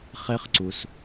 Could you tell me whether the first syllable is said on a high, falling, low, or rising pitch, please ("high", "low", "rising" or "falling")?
high